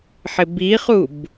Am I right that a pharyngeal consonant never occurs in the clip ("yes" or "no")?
no